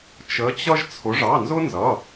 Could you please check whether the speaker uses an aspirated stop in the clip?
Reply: yes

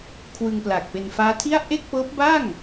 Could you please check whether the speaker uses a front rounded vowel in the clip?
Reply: no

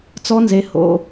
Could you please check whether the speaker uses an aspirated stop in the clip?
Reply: no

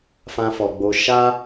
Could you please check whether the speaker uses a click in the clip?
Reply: no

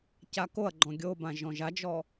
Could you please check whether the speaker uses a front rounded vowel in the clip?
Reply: no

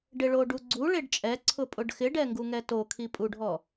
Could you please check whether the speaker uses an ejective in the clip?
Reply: yes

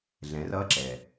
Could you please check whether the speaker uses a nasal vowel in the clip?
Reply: yes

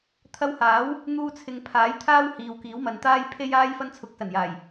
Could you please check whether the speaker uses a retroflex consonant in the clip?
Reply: no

